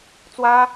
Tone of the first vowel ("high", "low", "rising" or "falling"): high